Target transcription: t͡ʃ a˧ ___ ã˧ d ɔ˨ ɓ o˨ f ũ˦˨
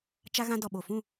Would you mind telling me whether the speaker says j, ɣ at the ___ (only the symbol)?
ɣ